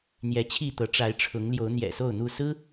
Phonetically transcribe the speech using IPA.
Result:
n̪ j ɛ˨˦ t͡ɕʰ i˥˨ t̪ ɤ˨˦ ʈ͡ʂ a˨˦ ɪ̯ ʈ͡ʂʰ ʊ˨˦ ŋ l j o˨˦ ʊ̯ n̪ j ɛ̰˨˩ s o˥˨ ʊ̯ n̪ u˥˨ s ɹ̩˦

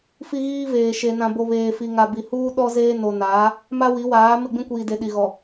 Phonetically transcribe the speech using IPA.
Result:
f i˦ ɣ iː˦ v eː˨ ʃ e˨ n ã˨ b o˨ β eː˨ f i˨ ŋ a˨ b i˨ h uː˦ ɗ ɔ˦ z eː˦ n o˨ n aː˨˦ | m a˦ w i˨˦ w aː˨˦ m ɪ˦˨ ɡ͡b ĩ˦ kʷ iː˨ d e˨ ɗ i˨ ɣ ɔ˨

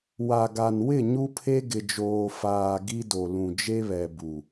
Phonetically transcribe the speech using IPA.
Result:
w a˨ ɡ a˨ n w ɪ˦˨ ɲ u˦ pʰ e˦ ɡ ɪ˨ d͡ʒ oː˨ f aː˨ ɡ i˦ d o˨ l ũ˨ d͡ʒ e˦ β ɛ˨ b u˨

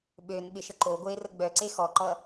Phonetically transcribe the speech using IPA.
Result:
ɓ ø n ɓ ɪ ʃ ə ǃ o ɡʷ e r ə ɡ͡b œ ǀ e x ɔ ǃ ʌ

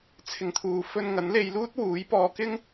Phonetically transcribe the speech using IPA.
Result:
t͡sʰ ɪ˨ ŋ t̪ʰ uː˨ f ɵ˧ n ŋ ɐ˨˥ n l e˧ j l uː˥ t̚ w uː˨˥ j p ɔː˧ k ɪ˥ ŋ

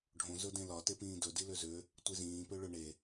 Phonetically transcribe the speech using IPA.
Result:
ɖʱ õ z ɵ d ẽ l ɒ t e p ĩː d ɵ d i l ø z ø | tʷ i z ĩː p ø ɭ ɵ ɳ e

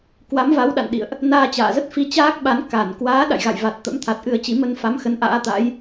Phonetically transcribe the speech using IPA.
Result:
k w a˨˦ m v a˨˦ w ɗ a̰˧˨ n ɗ ḭ˧˨ ə̯ ʔ | n aː˧ t͡ɕ a̰ː˧˨ z ə˦˥ t̚ f i˨˦ t͡ɕ aː˦˥ k̚ ɓ a˨˦ n k a˧˩ n k w aː˨˦ ɗ a̰˧˨ j ɣ a̰˧˨ j v a˨˩ t̚ t̪ ə̰˧˥ m t̪ʰ a˨˩ t̚ ʔ ɨ˧ ə̯ t͡ɕ i˨˦ m ə˧ n f a˨˦ m x ə˨˦ n ʔ a̰ː˧˥ t̪ a̰˧˥ j

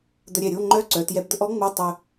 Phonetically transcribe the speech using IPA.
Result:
d̪ ə˧ ɾʲ ɛ˧˩ ɾʲ o˧˥˧ ŋ͡ǃ œ˦˥ ǀ œ˩˧ t j ɛ˧ b d̪ ə˧ ʔ ɔ˦˥ ŋ͡m o˧˥˧ tˤ œ˧

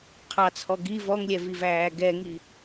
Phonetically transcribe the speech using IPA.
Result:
qʰ ɑ t͡sʰ ɔ ɡ i v ɔ ŋ lʲ ɛ v i v æː ɡ ɛ ŋ i

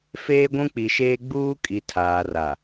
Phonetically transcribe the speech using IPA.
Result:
f eː˦ ɡʷ ũ˦ k͡p i˨ ʃ eː˦ ɡ͡b uː˦ kʼ i˨ tʰ aː˨ r a˨

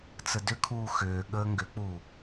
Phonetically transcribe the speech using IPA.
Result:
t͡s ə d ʏ kʰ uː x ʏː ɠ əː ŋ ɡ ʏ k͡p uː

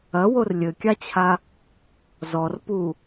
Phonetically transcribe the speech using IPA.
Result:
ɐ w o r lʲ ɘ kʲ a t͡ɕʰ a | z ɔ r p u

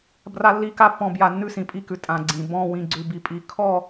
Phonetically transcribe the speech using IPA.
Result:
b r a˦ lː i˦ k a˦ pː ɔ̃˨ b j a˨ nː ʉ˦ s ĩ˨ pʼ i˦ k ʉ˨ tʼ ã˨ ɡ͡ǀ ĩ˨ b ɔ̃˦˨ w ĩ˨ ɡ͡ǀ ʉ˨ b i˨ pʼ i˨ kʰ ɔ˦˨

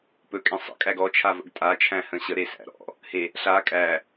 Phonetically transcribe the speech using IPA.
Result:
p ɵ kʼ ẽ sˤ ə̰ kʼ æ ɡ ɔ t͡ʃʰ a v ə̰ ɡ tʼ a t͡ʃʰ æ̃ h ə̃ ɕ ə ɾ e s æ̰ ɾ ɔ̰ | h e | ɬ a kʼ æ

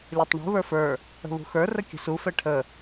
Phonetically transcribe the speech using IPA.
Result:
lʲ ə˞ tˤ ɳ ṳ β ə˞ f ə˞ | ə̤ β ṳ x ə˞ r ə kʲ ə̤ s u f ɛ ʈʰ ə

